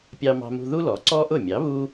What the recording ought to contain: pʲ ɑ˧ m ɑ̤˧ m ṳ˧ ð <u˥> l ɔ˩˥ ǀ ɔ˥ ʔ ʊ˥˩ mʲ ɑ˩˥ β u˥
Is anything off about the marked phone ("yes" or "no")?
no